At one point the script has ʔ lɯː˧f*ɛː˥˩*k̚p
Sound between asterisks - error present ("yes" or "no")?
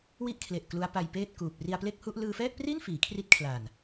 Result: no